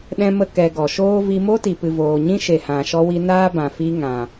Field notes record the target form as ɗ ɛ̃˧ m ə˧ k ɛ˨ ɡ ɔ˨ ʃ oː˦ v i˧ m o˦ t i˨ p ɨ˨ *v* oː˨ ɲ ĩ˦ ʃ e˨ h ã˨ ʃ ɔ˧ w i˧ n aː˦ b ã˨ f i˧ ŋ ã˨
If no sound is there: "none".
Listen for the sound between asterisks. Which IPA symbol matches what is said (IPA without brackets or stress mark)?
v